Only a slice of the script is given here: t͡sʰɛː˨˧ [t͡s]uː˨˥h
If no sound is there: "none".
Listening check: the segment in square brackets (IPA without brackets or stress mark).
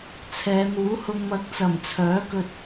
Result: n̪